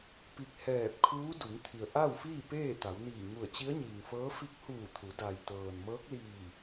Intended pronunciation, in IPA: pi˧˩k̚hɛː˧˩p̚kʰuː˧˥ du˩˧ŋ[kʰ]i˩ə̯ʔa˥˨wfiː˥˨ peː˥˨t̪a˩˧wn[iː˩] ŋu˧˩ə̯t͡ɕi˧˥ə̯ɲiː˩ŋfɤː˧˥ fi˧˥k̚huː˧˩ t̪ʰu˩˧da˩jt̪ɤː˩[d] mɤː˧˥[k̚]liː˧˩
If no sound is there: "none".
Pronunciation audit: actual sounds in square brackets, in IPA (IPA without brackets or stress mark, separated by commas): t̪ʰ, iː˧˩, n, k̚